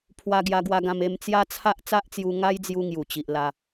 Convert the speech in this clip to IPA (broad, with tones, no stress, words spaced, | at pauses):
pʰwa˧ɡja˧ɡwa˧ɡã˧m e˧mt͡sja˦t͡sʰa˦ʔ t͡sa˦ʔt͡sju˧ŋa˦jd͡zju˧ ŋju˨˩t͡ɕi˨ʔ la˧